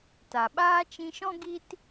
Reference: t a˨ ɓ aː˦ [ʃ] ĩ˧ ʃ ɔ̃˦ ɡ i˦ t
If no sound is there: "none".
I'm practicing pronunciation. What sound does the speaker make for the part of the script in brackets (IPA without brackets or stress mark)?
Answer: t͡ʃ